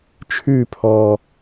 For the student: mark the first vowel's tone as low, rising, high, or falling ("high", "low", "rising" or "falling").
falling